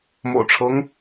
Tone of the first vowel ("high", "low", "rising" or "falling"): low